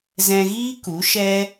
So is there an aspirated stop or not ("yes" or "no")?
no